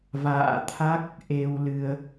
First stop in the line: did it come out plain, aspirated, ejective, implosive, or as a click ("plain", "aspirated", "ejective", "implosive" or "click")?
aspirated